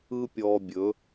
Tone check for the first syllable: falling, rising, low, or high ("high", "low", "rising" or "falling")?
high